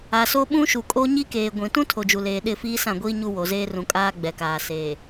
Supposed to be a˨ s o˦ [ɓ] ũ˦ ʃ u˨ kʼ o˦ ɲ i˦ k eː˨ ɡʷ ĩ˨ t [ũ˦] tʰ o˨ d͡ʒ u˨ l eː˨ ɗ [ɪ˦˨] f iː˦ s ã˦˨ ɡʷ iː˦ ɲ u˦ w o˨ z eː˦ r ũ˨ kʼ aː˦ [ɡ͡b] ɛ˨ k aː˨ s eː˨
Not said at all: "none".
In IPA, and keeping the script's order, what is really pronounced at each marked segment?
ɓ, ũ˦, ɪ˦˨, ɡ͡b

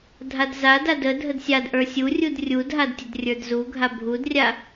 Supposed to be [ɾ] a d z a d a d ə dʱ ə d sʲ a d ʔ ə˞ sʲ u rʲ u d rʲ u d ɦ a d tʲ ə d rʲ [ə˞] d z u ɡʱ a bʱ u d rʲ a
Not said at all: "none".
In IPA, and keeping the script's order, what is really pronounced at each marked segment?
dʱ, ə˞

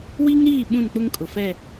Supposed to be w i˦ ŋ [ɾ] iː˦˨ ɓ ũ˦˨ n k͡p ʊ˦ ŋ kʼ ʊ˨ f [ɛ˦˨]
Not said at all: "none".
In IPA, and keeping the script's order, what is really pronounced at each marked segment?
ɾ, ɛ˦˨

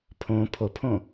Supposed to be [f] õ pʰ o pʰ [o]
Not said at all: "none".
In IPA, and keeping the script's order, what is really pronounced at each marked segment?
pʰ, õ

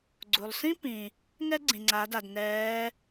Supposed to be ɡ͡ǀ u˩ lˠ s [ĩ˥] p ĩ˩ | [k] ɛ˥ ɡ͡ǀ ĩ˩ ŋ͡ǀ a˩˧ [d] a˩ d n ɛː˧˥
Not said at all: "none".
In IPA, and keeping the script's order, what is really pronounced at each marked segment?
ĩ˥, ŋ, d

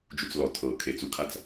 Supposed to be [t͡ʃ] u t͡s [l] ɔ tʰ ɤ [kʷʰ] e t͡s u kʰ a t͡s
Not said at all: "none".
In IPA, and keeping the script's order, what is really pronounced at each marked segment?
d͡ʒ, l, kʰ

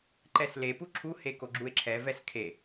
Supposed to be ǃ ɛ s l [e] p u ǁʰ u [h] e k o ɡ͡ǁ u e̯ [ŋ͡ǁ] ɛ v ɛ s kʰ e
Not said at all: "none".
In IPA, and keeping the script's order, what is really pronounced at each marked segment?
e, h, ǁʰ

